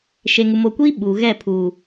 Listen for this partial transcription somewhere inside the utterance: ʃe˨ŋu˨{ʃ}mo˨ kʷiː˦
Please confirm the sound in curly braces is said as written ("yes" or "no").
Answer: no